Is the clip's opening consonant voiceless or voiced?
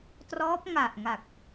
voiceless